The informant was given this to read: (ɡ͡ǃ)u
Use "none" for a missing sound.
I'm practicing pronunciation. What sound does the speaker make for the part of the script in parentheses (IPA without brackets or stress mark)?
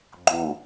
ɡ͡ǃ